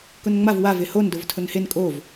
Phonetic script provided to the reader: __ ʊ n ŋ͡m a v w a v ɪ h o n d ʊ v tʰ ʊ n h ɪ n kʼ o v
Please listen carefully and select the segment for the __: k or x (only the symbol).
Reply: k